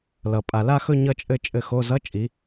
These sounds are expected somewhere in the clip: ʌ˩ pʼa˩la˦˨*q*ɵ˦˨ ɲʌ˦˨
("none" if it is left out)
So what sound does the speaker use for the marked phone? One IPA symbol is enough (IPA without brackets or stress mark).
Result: x